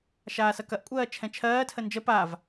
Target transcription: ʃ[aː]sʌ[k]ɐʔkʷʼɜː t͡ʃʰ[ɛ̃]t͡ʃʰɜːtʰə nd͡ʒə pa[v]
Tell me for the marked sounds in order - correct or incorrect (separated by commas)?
correct, correct, correct, correct